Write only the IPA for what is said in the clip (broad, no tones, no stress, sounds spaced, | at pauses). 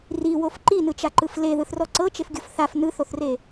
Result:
r i w o f ǃ i n ɯ t͡ʃ a ǃ ɯ f l e ð ɯ θ r ɔ ǀ ɤ t͡ʃ e f ɡʲ o f θ a f n ɯ θ o θ r e